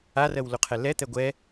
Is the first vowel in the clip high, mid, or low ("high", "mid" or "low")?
low